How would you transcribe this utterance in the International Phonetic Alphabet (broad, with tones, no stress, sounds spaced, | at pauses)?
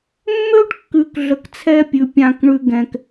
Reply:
mː ø˦ ɖ kː ʉ˨ k ɮ ə˨ k t͡sʰ ɛ˦ pʲ ʉ˨ pʲ ã˨ k ɳ ʉ˨ ɡ ɛ̃˨ k